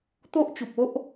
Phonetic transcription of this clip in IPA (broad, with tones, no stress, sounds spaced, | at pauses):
t̪ o˦ ʔ t͡ɕ u˨ p̚ o˦ ʔ